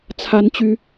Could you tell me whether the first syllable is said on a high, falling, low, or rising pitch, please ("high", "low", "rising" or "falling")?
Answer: high